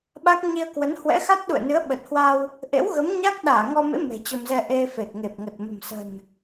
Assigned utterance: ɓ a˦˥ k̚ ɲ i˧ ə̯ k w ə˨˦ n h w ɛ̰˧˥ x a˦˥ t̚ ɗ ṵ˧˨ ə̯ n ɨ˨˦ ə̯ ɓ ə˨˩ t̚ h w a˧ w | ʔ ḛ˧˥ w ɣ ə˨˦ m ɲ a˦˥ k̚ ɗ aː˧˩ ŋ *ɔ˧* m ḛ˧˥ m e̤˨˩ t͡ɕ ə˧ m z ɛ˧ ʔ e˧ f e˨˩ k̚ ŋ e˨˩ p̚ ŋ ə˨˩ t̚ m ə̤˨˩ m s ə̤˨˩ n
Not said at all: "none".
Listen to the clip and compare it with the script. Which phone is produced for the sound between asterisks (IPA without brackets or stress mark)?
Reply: ɔ˧